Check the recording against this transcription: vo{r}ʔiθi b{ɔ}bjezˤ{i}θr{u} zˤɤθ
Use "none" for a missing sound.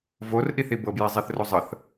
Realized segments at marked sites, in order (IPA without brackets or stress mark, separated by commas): r, ɤ, e, o